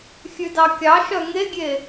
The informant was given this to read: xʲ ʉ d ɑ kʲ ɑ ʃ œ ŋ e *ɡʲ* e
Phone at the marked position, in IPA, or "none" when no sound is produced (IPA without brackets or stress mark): ɡʲ